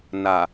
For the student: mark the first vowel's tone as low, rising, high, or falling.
low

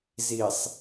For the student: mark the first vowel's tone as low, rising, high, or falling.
low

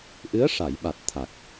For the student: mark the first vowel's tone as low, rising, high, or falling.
rising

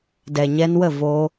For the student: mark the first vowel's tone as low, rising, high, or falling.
low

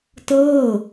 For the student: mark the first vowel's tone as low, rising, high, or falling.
falling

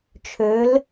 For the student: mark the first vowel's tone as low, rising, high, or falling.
rising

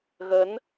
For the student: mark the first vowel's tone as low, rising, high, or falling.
rising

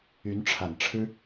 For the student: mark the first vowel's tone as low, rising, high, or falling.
rising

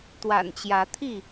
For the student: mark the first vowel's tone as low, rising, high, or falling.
low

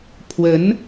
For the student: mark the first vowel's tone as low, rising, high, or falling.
rising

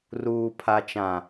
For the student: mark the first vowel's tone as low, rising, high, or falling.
low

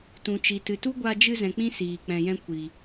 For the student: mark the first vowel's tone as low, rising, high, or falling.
low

